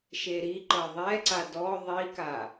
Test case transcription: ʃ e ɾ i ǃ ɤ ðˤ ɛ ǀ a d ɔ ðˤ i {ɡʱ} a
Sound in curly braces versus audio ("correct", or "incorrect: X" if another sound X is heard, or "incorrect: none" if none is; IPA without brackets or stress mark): incorrect: k